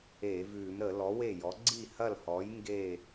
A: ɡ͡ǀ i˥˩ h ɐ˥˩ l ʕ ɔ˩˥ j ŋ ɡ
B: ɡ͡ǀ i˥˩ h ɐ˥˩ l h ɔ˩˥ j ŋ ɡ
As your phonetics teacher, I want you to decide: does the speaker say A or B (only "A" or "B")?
B